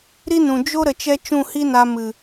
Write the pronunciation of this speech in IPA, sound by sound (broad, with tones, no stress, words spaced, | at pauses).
ɾi˦nũ˨ d͡ʒo˦ ɾə˨t͡ʃɛ˦ t͡ʃũ˦˨hi˦na˧ mɨ˨